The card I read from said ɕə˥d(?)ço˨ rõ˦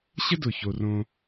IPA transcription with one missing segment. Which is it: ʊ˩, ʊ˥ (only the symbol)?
ʊ˩